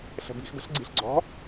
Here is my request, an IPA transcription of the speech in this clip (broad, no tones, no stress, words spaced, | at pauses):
ɬə̤bi̤xbə̤ɬ ɡ͡ǀi̤ɬɡ͡ǀɔ̤